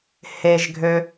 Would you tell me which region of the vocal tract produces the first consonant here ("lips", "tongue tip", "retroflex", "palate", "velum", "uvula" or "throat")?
throat